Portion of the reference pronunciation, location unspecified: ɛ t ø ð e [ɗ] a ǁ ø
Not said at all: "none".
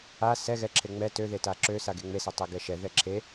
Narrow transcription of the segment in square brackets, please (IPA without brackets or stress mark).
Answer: t